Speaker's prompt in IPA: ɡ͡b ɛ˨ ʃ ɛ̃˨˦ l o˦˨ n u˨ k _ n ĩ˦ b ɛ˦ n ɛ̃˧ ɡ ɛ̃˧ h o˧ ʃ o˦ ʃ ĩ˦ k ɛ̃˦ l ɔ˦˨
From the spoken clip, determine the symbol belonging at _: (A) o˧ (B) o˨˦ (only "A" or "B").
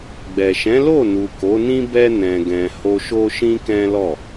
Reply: B